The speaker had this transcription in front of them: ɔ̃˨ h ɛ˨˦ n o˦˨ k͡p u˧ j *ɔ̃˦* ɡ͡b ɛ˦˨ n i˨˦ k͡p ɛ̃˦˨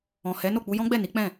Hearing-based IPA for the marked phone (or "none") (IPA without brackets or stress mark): ɔ̃˦